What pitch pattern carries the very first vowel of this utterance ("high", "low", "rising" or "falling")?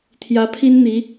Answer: rising